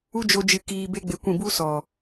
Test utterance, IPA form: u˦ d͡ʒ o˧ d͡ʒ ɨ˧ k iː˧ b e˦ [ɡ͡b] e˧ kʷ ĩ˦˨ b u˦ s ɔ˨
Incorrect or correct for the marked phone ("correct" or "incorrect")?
correct